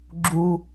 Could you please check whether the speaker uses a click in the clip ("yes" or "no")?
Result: yes